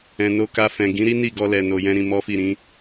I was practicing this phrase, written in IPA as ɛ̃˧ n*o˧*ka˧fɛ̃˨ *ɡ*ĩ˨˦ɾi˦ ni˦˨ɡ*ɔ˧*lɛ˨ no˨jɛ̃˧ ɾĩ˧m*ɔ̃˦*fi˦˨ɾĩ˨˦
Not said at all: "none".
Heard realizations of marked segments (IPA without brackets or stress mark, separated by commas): o˧, ɡ, ɔ˧, ɔ˦